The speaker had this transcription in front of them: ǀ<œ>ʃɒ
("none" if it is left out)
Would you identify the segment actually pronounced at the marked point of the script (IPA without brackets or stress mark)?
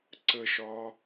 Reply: ə